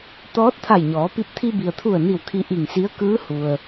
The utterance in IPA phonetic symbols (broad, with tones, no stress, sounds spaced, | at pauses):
t̪ ɔː˧˥ t̚ t̪ʰ a˧˩ j ɲ ɔː˩˧ p i˧ p̚ t̪ʰ i˧ b i˩ ə̯ t̪ʰ u˧˩ ə̯ n i˧˩ w kʰ i˧ ʔ i˧˩ ŋ s i˧˥ ə̯ k ɯː˧˥ h u˩ ə̯